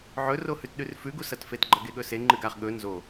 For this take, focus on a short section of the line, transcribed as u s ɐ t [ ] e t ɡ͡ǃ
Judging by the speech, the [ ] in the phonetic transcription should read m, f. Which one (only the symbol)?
f